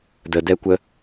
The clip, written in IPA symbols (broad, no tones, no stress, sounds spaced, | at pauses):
d̪ ə d̪ ɛ kʷ ə